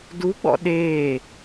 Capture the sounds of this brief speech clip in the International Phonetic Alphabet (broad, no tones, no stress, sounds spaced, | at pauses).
d u ɡ͡b ɔ̰ ɗ eː